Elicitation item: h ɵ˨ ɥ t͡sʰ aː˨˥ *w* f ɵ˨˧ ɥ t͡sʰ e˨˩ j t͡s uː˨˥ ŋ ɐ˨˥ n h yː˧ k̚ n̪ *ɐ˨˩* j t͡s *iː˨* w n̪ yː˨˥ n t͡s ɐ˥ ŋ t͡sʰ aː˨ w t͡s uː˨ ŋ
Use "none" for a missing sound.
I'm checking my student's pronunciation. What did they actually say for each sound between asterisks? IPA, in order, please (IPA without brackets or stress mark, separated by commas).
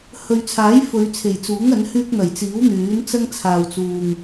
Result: j, ɐ˨˩, iː˨˥